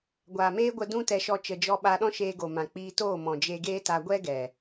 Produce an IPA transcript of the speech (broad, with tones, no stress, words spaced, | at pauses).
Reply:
ɡʷaː˨meː˦ɡʷə˧ dũ˦tɛ˧ʃɔ˧ t͡ʃə˧d͡ʒɔ˦ɓa˦ ɗɔ̃˦ʃeː˧ɡo˨mã˨ k͡piː˧toː˦˨mɔ̃˨ d͡ʒe˧ɡeː˦ta˧ ɡʷɛ˦ɡɛ˨